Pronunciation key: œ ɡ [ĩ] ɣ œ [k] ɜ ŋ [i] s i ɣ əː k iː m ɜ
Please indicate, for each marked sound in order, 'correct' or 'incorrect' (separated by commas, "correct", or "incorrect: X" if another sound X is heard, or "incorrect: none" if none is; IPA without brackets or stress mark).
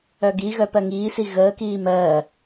incorrect: i, incorrect: p, incorrect: iː